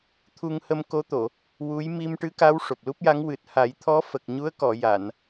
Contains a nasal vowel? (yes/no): no